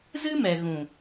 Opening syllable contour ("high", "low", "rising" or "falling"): high